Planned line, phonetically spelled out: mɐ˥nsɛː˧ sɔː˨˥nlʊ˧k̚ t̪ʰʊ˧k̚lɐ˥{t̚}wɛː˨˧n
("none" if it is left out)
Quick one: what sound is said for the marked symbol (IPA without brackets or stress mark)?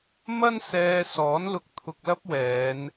p̚